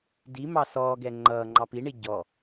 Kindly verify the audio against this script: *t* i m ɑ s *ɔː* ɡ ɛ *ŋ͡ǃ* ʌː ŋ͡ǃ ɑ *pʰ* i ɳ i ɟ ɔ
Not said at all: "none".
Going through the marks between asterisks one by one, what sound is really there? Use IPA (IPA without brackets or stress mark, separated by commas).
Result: d, ɔː, ŋ͡ǃ, p